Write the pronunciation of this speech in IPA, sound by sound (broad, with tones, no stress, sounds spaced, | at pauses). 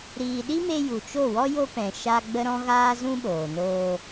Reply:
ɾ iː˨ ɗ i˦ m e˧ j u˨ t͡ʃ o˦˨ w ɔ˦ j o˦ p ɛ̃˨ ʃ a˦ ɡ͡b ə˦ ɾ ɔ̃˦ ɣ aː˦ z ũ˦ ɓ oː˨ n oː˧